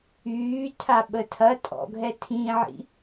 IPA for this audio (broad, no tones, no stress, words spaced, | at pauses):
yːtʰa ɓətʰɐtʼɔ̰ɡʱɛ tʰĩʕḭ